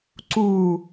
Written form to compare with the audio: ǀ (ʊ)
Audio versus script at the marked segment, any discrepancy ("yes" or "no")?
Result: yes